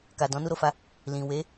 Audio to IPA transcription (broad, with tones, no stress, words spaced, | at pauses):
ka˨dɔ̃˨˦ nu˧ɾo˨fa˧ | lĩ˨ we˨˦